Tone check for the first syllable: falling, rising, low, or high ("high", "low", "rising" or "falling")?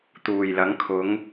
low